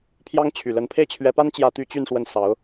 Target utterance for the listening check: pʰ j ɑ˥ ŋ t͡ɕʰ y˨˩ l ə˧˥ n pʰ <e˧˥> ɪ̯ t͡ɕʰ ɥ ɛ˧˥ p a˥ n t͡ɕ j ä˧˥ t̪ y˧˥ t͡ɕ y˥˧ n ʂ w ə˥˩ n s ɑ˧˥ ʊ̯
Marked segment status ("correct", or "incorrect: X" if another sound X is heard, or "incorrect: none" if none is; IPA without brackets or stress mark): incorrect: e˥˩